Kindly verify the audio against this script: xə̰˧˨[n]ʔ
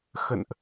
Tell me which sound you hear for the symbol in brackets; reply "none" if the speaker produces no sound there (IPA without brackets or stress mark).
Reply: n